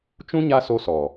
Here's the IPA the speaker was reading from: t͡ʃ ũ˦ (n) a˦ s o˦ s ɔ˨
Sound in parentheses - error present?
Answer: yes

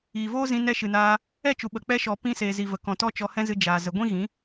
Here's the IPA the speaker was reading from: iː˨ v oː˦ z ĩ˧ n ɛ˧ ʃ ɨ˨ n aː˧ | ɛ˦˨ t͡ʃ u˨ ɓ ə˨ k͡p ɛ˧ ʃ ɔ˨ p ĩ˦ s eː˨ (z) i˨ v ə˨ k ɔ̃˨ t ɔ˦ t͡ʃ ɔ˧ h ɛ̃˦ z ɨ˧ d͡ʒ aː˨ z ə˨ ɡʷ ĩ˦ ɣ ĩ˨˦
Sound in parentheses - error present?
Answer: no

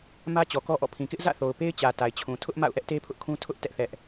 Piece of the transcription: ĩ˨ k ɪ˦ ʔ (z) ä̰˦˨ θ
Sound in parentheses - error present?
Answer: no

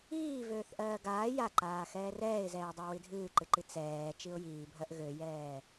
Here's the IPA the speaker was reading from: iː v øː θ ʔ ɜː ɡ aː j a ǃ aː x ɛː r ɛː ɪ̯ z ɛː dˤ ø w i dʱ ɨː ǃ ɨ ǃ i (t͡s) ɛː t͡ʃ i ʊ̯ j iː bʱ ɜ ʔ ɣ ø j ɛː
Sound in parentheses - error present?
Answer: no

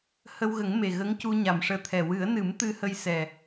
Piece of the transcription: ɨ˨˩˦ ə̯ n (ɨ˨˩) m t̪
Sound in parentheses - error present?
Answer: yes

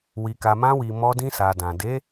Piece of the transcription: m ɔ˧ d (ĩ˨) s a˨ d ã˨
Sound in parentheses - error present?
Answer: yes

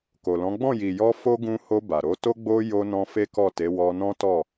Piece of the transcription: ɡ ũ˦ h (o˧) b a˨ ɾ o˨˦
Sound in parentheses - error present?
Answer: no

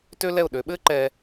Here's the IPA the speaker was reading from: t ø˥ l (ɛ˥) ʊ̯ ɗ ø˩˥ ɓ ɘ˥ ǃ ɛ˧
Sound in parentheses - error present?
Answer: yes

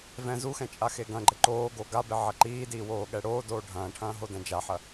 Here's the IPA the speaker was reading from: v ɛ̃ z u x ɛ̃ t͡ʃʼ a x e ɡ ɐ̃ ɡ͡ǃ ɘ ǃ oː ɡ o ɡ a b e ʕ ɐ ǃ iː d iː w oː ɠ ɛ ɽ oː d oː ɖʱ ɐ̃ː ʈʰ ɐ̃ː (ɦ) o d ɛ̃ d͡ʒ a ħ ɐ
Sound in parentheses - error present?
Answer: no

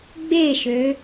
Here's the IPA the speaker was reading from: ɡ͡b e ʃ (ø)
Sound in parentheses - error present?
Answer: no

